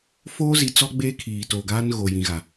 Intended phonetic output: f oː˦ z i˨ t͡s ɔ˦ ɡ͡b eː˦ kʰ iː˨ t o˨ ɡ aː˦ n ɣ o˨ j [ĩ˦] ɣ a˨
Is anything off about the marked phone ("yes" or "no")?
yes